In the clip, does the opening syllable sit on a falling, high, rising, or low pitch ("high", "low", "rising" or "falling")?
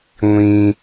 high